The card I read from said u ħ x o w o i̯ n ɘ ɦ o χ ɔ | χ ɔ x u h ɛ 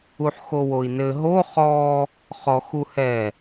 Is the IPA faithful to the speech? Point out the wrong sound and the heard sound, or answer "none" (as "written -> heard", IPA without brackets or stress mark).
none